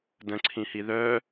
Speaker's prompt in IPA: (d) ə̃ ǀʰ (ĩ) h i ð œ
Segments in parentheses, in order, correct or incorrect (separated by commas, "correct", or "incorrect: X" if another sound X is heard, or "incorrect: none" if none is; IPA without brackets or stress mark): correct, correct